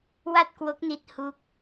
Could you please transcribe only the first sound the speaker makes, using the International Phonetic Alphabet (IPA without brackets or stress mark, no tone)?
w